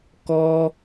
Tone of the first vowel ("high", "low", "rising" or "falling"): high